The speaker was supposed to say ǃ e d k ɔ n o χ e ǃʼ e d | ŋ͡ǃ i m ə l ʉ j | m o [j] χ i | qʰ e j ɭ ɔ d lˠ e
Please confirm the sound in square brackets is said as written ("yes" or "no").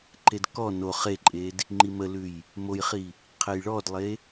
yes